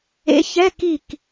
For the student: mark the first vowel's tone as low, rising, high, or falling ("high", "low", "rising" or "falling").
rising